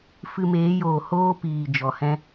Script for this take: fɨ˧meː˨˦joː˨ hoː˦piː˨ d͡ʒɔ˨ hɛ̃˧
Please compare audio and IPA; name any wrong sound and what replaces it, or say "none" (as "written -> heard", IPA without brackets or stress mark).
none